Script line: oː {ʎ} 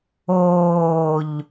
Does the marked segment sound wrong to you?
no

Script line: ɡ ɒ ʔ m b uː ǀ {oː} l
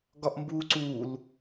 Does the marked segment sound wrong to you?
yes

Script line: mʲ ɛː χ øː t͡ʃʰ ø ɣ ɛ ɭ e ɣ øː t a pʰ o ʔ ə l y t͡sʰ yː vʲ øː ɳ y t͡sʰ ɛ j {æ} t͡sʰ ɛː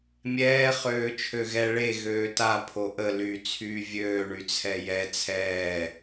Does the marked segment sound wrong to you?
yes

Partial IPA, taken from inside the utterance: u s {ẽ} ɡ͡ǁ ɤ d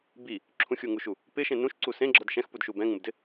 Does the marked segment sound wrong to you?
no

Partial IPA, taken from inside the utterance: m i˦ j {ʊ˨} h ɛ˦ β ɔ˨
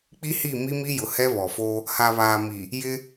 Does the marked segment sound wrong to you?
no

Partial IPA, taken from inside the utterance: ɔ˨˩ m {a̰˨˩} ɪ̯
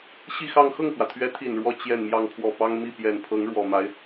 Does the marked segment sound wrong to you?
yes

